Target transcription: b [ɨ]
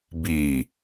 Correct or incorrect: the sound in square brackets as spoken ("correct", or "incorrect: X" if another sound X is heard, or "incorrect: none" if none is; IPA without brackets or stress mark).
incorrect: i